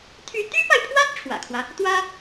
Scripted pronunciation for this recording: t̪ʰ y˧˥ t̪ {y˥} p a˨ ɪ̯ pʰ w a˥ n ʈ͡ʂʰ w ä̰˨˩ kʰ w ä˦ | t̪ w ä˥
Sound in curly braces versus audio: correct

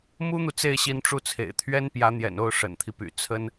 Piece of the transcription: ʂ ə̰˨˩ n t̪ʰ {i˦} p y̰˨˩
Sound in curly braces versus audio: correct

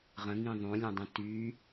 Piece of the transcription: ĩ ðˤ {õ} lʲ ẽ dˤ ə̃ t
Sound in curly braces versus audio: correct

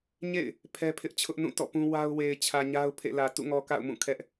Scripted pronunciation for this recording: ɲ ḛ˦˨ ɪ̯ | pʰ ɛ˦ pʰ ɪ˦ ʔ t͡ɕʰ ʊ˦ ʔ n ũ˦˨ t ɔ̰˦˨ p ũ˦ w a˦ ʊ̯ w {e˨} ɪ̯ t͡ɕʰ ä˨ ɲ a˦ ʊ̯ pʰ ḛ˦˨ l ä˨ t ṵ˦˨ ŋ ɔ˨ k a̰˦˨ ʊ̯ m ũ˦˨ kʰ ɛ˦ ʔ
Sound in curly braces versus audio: correct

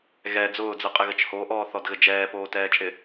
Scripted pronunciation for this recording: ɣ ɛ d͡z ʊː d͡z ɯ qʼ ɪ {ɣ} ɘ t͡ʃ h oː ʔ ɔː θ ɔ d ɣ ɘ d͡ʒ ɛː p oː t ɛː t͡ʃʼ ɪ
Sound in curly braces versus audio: correct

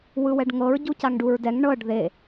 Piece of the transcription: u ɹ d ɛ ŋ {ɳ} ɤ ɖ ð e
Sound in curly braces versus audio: correct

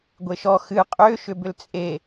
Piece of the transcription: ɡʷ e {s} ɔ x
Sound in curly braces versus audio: incorrect: ʃ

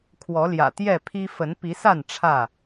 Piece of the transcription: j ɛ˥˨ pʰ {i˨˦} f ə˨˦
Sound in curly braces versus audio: incorrect: i˦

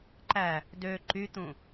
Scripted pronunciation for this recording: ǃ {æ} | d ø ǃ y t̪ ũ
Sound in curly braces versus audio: correct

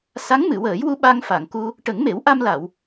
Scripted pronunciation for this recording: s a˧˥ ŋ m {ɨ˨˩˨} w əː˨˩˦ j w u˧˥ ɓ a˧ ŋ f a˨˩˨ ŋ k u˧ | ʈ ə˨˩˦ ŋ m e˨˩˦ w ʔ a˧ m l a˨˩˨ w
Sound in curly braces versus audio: correct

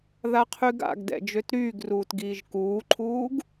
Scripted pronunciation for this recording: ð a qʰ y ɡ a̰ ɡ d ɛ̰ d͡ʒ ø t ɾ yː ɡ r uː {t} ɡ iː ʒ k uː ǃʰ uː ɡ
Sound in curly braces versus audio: correct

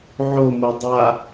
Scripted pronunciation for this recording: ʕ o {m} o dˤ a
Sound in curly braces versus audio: correct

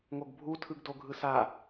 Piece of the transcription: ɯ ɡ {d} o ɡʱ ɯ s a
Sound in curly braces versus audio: correct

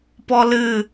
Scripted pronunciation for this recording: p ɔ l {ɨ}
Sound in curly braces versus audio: correct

